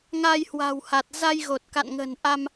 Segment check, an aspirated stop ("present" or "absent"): absent